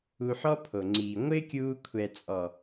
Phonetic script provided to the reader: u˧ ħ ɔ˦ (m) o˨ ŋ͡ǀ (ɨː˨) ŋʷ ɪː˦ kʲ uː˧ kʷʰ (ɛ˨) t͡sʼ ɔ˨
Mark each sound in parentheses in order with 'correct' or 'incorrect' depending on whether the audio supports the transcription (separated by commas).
incorrect, incorrect, correct